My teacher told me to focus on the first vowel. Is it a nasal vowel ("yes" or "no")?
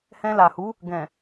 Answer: yes